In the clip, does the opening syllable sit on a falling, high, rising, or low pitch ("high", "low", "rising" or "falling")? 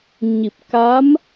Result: low